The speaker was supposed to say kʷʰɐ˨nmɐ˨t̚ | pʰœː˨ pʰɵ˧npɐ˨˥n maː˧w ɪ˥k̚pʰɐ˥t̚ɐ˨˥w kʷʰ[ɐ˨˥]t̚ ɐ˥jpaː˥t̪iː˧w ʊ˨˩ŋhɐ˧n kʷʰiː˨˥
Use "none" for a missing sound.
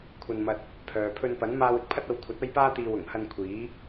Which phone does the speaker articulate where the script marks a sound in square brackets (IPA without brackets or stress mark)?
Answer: ɐ˨˥